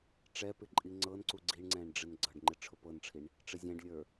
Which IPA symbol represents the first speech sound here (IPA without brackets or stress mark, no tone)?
ʈ͡ʂ